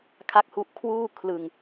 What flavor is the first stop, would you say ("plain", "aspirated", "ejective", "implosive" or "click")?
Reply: aspirated